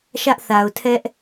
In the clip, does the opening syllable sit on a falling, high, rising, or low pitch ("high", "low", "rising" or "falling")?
high